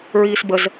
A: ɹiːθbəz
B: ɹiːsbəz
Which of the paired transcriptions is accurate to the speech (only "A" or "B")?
B